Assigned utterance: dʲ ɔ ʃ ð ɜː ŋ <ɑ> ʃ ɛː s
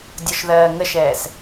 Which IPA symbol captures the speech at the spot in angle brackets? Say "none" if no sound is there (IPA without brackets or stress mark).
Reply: ə